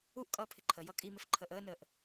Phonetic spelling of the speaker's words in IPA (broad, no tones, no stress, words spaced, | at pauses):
uʔ kʼʌːpʰɪǃʰəjʌ kʼimɪf ǃʰəːʔəːnəːʔ